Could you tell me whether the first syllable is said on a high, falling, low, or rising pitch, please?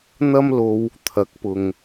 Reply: high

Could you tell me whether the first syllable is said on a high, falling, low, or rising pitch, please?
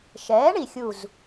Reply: rising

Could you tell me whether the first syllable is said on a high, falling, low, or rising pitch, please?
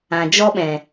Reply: low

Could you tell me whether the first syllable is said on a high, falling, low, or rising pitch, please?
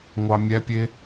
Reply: low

